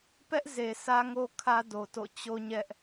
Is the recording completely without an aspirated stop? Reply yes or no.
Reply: no